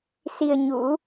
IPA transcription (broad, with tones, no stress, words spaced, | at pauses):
si˧ə̯ɲṵ˧˥